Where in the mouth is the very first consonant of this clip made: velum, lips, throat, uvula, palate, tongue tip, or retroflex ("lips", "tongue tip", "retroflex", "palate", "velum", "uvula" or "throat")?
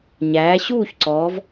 palate